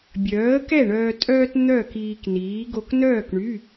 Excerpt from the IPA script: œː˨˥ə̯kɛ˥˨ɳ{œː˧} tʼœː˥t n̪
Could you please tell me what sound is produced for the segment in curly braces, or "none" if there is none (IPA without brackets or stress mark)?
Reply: œː˧